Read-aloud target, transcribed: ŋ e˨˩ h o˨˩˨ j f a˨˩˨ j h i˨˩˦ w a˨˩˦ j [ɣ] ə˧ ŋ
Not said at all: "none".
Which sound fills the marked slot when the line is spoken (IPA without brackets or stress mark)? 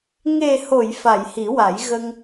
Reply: ɣ